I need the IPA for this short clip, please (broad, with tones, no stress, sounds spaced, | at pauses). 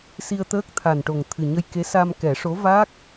s i˧ ə̯ t̪ əː˦˥ k̚ t̪ʰ a˨˩ n ʈ o˨˩ ŋ t̪ʰ ɨ˨˩ ɲ ə˧ j k e˧˥ s a˧ m k ɛ˨˩˦ ʂ o˧˥ v a˦˥ k̚